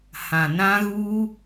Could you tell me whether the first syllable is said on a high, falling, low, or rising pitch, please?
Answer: low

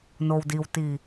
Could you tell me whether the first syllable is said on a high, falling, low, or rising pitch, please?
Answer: low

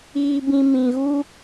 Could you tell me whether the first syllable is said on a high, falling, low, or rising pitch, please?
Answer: high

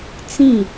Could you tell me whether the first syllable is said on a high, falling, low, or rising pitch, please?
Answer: falling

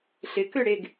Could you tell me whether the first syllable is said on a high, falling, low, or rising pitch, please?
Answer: rising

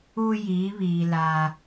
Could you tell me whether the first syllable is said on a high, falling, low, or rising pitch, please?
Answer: low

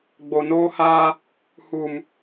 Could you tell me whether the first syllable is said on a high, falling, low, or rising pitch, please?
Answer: low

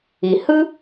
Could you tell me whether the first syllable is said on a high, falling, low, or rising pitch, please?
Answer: low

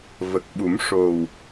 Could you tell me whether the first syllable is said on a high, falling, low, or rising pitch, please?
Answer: low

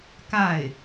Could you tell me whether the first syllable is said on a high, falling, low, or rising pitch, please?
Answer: falling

